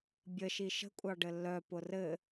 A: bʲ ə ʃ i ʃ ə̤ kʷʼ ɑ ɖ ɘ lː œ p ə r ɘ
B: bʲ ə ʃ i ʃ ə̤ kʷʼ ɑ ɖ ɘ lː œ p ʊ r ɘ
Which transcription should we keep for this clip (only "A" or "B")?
B